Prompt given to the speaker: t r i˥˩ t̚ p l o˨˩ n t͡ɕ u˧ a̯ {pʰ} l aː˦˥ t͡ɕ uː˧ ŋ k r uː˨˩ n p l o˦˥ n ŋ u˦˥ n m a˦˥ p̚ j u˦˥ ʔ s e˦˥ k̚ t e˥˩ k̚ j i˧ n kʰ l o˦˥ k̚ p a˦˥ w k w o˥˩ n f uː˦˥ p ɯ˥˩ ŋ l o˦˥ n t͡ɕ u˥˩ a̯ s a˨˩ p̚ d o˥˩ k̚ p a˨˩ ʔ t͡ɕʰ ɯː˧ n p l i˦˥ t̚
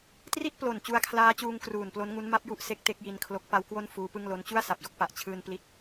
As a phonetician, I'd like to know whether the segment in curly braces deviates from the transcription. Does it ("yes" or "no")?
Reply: yes